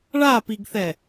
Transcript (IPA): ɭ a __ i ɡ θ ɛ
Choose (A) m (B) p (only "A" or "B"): B